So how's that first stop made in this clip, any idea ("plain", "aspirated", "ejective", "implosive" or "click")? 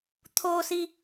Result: aspirated